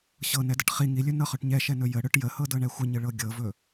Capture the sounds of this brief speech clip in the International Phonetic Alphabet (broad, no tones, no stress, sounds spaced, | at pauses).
ɕ ɤ n ɛ d ə ʈ χ i ŋ i lʲ ɵ n ɤ χ ɵ ʈ ɲ ɛ ʃ ɛ n ɵ j ə ɽ ɵ ʈ j ə h ɤ d ɤ ɳ ɛ xʷ ə ɲ ə ɭ ɤ ɡʲ ɤ v ɵ